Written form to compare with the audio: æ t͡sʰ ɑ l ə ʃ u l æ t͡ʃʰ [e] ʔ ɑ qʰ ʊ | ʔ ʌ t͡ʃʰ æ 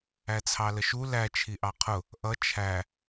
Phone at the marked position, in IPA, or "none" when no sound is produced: i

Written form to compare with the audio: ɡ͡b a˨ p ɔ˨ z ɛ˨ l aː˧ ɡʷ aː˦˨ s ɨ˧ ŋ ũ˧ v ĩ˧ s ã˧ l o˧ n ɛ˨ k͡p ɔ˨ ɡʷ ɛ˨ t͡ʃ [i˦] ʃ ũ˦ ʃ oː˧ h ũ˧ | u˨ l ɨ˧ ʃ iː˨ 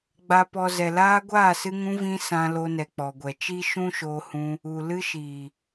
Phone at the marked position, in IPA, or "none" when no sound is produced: i˦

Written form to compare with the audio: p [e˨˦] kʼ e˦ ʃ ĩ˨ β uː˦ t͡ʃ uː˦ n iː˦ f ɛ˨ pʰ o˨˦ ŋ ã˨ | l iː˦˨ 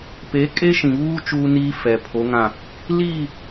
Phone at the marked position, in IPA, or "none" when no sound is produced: e˨˦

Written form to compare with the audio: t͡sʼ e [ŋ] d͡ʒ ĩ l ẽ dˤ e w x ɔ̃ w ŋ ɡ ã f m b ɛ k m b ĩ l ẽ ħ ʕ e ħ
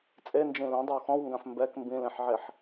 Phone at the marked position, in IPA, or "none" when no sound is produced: n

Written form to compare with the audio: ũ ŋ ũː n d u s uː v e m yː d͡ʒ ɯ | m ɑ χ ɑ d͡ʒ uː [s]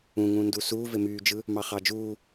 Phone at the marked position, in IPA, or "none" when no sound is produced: none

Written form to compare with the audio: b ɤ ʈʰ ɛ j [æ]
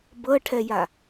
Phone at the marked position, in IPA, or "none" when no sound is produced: a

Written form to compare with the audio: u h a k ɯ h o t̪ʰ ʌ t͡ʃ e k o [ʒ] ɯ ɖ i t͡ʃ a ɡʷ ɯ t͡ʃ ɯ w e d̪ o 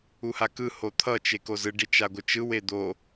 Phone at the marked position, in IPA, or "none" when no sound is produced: z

